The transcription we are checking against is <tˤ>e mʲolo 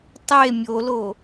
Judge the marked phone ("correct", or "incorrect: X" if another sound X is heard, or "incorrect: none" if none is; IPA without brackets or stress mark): correct